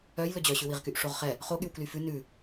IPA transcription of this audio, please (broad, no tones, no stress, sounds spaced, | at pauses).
œ j l ɵ d͡ʑ œ ɕ ʉ w i ʁ k y ʔ ʂ o ʁ χ ɛ | χ o ɠ y w k l y f ʉ n ʉ